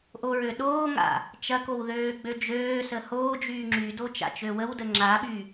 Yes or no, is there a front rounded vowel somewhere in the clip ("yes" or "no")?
yes